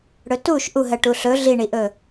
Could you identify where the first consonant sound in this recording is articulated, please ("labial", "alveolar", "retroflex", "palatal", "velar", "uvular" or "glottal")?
retroflex